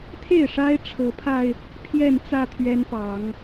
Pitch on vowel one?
falling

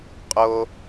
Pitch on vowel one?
high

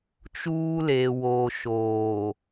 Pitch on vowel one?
high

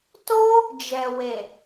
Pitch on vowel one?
high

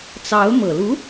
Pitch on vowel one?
rising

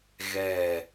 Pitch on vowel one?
low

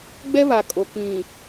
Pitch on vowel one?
high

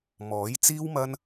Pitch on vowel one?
rising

